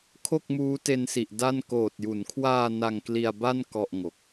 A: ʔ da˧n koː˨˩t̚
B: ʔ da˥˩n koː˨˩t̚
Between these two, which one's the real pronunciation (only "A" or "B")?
B